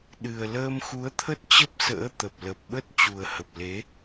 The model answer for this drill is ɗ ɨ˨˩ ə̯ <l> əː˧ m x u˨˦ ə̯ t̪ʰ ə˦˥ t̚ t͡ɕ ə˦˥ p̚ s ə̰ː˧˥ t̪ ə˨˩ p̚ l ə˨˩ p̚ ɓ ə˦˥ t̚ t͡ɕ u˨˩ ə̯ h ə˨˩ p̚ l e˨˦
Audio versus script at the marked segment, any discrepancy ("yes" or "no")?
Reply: no